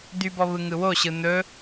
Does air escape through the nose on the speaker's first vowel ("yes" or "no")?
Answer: no